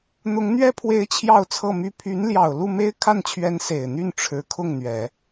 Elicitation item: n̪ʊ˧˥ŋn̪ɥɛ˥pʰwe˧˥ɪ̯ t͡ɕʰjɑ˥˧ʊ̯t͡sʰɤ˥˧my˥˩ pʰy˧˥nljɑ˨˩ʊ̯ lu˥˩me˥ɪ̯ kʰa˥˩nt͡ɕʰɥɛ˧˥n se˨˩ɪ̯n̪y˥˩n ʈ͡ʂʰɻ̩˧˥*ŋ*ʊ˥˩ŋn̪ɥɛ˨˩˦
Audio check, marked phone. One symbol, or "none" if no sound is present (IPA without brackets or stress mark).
kʰ